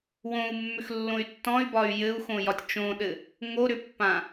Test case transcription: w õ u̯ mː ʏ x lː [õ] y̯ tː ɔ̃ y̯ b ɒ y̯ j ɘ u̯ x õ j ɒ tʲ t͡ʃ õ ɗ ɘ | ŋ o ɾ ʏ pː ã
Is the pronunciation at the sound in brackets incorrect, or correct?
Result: correct